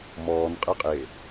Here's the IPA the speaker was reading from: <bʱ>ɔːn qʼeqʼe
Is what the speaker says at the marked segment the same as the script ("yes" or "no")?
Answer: no